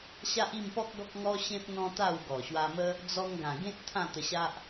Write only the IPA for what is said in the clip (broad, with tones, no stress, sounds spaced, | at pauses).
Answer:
ɕ a˦ ʔ i˥˧ m p ɔ˦ k̚ ɡ ɔ˦ k̚ ŋ ɔ˦ ɕ ẽ˦ p̚ n̪ ɔ̃˦ t̪ a˥˧ w ɡ ɔ˨˩ ɕ w a˧ m ə˦ | d͡z ɔ˧ ŋ ɡ ã˨˩ ɡ ẽ˦ t̚ t̪ʰ ã˥˧ t̪ ə˧ ɕ a˦ ʔ